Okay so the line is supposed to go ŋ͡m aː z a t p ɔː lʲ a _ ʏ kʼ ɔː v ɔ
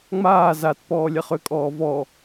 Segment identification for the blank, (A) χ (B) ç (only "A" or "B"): A